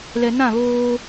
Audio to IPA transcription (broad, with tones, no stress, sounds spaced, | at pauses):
l ɛ˨ n ã˦˨ β oː˦